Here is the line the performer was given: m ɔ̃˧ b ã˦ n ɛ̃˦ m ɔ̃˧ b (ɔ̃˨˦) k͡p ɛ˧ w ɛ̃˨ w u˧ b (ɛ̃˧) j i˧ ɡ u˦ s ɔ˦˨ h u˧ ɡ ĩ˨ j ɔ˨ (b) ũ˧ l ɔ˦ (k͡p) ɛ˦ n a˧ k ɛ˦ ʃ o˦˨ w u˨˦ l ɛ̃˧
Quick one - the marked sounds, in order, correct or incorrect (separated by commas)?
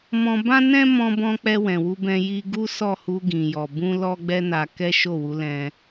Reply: incorrect, correct, correct, incorrect